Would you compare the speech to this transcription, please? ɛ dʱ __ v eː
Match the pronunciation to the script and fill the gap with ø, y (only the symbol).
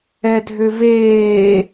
ø